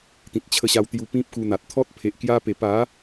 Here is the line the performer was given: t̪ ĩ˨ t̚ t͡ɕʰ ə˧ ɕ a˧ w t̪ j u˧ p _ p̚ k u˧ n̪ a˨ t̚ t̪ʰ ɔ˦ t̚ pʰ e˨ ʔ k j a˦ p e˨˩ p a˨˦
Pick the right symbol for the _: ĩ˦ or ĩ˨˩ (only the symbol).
ĩ˦